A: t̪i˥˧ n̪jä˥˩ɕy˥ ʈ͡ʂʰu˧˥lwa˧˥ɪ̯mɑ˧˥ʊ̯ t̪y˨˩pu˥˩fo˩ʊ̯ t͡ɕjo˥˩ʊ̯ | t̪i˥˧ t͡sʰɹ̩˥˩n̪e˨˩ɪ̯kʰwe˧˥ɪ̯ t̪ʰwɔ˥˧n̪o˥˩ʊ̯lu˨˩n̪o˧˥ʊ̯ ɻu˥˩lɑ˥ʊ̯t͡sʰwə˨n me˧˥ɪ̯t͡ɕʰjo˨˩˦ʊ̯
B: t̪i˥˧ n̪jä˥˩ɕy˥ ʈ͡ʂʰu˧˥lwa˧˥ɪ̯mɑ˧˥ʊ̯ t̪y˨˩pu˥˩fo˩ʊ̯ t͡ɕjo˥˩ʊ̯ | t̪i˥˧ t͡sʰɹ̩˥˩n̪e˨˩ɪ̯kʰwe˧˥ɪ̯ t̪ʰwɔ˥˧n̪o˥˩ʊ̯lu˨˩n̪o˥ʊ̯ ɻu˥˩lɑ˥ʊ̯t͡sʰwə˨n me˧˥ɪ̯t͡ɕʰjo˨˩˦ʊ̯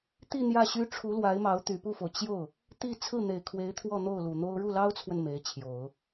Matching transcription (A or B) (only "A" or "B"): B